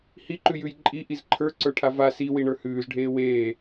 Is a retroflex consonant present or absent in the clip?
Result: present